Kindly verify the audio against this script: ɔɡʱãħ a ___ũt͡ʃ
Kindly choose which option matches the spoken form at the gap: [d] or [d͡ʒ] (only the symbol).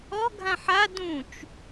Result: d